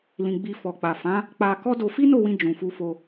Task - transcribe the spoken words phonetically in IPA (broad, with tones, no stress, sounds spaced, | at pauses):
l ĩ˧ ɡ͡b i˧ f ɔ˨ k͡p a˨ f ã˨˦ | k͡p a˧ k ɔ˦ d o˧ f i˦ n o˦˨ w ĩ˧ d͡ʒ ũ˨ f u˧ f o˧